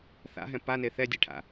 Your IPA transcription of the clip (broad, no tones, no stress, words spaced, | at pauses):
θa̰ɦɛ̃ pane θɛdʲeʈʰa̰